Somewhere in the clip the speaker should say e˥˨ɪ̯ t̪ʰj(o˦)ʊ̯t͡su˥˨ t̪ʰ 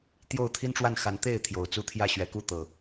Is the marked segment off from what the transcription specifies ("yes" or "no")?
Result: yes